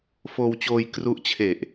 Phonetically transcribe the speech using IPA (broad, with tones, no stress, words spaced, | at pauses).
foː˧wt͡ɕoː˧j kru˦˥ʔt͡ɕʰe˨˩ʔ